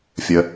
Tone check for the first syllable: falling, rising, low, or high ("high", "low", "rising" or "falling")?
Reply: low